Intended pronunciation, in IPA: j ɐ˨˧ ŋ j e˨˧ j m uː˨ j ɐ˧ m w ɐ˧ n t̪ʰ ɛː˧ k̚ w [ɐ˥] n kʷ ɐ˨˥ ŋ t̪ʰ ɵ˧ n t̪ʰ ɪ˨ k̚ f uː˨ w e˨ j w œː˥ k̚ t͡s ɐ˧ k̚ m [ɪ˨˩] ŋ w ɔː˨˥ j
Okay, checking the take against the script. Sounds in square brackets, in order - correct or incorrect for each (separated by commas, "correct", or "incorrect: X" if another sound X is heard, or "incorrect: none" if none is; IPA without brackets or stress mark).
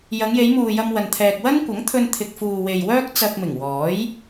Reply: correct, correct